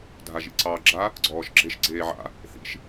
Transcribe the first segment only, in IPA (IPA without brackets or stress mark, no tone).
dʱ